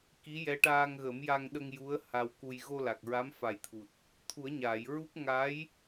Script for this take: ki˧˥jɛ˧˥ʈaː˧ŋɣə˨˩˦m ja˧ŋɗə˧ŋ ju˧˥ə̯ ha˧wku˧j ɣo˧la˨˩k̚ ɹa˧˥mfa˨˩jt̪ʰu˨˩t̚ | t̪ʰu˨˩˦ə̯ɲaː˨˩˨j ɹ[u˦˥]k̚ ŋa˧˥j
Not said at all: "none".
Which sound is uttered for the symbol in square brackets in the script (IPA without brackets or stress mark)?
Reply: u˦˥